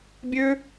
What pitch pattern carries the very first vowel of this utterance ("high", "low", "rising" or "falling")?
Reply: high